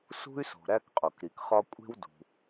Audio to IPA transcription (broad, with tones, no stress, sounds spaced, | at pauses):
s ṳ˥ y̯ s o̤˩ ɾ æ˥ k qʼ o˩ k ɾ i˩ k χ ɒ˥ kʷʼ e̤˥ w d ṳ˩